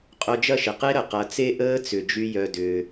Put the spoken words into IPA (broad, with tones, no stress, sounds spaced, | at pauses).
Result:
qʼ œ˧ d͡ʒ ɐ˦˨ ʃ ɪ˨ q e˦ ɾ ə˨ q ɐ˨˦ t͡s e˦ ʔ əː˦ t͡s ʏ˨ d͡ʒ y˦ j œ˧ d ʏː˧